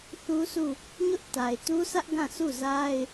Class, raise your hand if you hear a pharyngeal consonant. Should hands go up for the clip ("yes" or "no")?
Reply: no